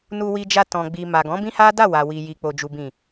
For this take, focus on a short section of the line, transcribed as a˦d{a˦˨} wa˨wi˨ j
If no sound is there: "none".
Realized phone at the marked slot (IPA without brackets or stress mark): a˦˨